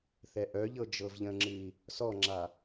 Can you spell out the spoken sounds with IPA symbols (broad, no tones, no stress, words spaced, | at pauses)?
θɛʔœʎɤ d͡ʒɤvʎə̃ŋ͡ǁɨi̯ | sɔŋ͡ǁa